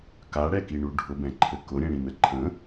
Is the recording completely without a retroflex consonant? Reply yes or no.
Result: no